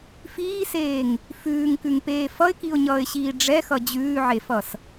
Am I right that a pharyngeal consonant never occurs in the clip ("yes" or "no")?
no